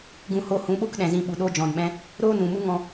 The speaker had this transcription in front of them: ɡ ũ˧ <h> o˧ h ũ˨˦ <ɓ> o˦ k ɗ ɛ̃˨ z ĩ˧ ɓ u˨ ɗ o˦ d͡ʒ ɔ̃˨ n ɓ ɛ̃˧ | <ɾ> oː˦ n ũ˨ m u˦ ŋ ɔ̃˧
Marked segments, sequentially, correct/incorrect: correct, correct, correct

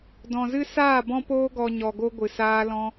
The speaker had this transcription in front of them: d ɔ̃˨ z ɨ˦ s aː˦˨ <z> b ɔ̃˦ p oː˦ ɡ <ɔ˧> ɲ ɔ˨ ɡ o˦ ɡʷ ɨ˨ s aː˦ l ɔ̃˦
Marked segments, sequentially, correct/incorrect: incorrect: none, correct

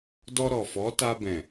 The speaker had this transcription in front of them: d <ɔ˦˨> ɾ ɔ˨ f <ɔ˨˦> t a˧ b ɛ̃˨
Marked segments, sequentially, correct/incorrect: incorrect: ɔ˧, correct

